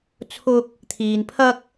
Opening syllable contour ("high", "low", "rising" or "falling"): high